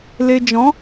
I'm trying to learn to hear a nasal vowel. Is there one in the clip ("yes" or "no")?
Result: yes